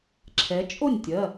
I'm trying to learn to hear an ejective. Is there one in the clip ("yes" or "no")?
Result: yes